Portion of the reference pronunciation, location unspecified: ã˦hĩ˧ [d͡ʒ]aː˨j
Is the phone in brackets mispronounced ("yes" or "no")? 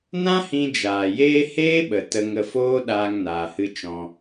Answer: no